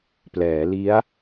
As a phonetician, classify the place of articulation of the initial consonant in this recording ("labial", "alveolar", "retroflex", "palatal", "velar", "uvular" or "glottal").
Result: labial